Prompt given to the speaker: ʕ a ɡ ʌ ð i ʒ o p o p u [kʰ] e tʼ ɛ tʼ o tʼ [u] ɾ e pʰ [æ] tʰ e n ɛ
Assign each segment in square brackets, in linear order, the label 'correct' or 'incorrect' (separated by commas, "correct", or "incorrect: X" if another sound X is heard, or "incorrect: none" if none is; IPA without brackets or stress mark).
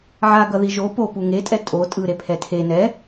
incorrect: ŋ, incorrect: ɯ, incorrect: ɛ